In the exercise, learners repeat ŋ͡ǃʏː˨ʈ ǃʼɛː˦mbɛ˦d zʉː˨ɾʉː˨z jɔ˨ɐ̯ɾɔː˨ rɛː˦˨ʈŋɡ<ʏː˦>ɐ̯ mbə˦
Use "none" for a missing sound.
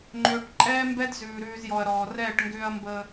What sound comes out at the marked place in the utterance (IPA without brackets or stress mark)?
ʏː˦